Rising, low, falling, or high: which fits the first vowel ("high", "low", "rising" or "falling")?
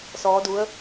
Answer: rising